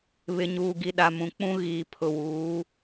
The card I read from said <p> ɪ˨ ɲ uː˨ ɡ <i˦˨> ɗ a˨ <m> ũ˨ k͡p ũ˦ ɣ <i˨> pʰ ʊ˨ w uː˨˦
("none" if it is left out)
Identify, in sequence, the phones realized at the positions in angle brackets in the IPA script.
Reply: β, i˨, m, iː˨

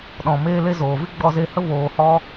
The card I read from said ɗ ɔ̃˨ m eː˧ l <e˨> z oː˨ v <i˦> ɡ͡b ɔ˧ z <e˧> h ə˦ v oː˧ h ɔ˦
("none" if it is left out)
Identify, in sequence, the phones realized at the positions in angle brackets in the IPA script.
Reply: e˧, i˦, e˧

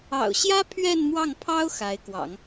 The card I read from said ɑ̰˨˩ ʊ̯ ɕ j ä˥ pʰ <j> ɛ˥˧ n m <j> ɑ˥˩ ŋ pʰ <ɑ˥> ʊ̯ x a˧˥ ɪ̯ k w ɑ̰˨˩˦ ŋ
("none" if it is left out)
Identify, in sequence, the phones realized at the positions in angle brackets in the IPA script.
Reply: ɥ, w, ɑ˥

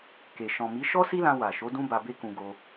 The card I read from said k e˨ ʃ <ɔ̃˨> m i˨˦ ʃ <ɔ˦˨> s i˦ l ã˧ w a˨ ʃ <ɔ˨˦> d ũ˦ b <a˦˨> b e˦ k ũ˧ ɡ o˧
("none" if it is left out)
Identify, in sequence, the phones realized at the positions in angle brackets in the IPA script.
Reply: ɔ̃˨, ɔ˦, o˨˦, a˧

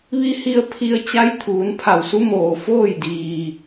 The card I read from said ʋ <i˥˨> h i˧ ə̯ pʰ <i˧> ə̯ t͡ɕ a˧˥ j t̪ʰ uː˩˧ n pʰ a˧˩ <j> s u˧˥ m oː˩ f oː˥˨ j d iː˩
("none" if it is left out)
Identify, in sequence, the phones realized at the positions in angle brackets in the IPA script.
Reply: i˧, i˧, w

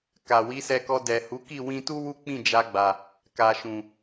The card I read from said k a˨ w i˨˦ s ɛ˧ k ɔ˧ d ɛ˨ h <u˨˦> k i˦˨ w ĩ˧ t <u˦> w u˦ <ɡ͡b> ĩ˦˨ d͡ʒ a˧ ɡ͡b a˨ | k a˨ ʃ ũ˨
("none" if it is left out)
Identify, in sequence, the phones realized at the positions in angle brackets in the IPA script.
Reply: u˨˦, u˦, k͡p

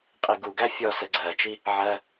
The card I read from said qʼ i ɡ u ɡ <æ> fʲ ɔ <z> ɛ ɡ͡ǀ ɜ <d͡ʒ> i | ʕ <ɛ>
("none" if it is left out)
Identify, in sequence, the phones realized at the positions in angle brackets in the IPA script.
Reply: æ, s, t͡ʃ, ɜ

